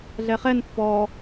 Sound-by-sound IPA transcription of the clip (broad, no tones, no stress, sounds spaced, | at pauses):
ɮ ɛ χ ɛ n pː ɔ